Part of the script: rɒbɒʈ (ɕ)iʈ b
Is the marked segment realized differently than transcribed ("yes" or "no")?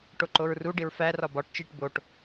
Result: yes